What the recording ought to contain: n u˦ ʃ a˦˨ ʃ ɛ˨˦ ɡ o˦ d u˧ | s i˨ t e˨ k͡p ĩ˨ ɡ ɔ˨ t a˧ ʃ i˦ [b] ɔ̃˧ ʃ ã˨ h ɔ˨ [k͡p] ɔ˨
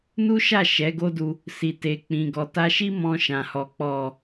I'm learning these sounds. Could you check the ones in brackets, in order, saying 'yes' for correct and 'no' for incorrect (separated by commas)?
no, yes